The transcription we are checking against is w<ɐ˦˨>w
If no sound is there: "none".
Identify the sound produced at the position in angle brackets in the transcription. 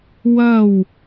ɐ˦˨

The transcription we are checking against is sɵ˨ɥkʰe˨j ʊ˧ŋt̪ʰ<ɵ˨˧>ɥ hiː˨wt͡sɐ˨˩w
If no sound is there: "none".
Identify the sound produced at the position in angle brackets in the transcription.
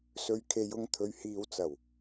ɵ˨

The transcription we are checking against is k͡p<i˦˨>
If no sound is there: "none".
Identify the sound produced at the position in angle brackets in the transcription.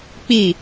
i˦˨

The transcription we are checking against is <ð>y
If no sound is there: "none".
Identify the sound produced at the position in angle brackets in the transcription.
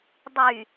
dˤ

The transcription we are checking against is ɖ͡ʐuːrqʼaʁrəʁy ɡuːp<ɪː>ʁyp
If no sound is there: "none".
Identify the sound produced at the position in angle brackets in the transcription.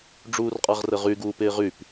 ɪː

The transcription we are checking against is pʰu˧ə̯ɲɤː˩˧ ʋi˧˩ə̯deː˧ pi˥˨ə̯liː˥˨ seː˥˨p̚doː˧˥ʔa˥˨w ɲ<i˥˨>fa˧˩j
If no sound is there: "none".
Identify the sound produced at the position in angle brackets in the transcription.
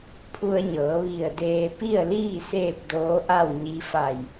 i˧˥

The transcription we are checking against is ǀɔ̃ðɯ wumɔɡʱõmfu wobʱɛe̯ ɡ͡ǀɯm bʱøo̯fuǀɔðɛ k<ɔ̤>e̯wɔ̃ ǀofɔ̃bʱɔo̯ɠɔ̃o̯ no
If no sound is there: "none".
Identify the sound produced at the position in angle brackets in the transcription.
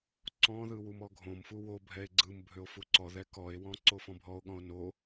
ɔ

